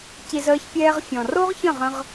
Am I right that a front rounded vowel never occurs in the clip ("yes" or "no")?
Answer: yes